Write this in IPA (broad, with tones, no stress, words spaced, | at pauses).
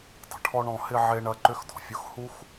dˤə̤˩ʈʰɔ˥ɳɔ̃˦ hɪ˦ ʕe˥ɳɐ˥ ǃʏ˥xdɔ̤˩fʲʊ˥x hu˥x